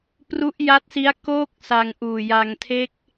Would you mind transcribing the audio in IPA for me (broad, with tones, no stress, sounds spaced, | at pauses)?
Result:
p r u˦˥ ʔ j a˦˥ t̚ s i˦˥ a̯ k oː˦˥ k̚ s a˧ ŋ ʔ uː˨˩ j a˧ ŋ tʰ e˦˥ k̚